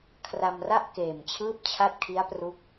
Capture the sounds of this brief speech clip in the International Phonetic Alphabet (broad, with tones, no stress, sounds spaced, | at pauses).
kʰ r a˧ m r a˥˩ ʔ k eː˨˩ m t͡ɕʰ ɯː˦˥ p̚ t͡ɕʰ a˦˥ t̚ kʰ i˦˥ a̯ p r u˦˥ k̚